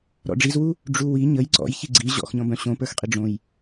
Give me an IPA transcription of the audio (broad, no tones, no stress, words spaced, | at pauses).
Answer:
ɾɔ̰ɖ͡ʐizwu | ɖ͡ʐuwi ɲəj ǀɔ̰jçi ɡ͡ǀi ʑɔ̰xɲɔ̃bœ̃ ɕõpə˞xqʼi ɖ͡ʐõj